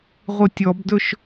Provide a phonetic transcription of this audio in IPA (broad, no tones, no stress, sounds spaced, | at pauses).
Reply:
ʁʷ ɨ tʲ ɔ b d ɵ ʃ